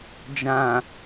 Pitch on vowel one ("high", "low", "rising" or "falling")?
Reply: low